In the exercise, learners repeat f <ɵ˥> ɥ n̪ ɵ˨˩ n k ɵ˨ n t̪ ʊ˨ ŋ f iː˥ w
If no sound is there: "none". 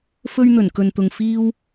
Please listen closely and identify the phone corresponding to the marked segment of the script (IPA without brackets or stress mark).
ɵ˥